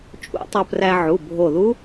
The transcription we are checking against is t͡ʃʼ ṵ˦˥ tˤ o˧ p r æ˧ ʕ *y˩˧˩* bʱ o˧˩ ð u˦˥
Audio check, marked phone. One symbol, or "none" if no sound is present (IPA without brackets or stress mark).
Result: u˩˧˩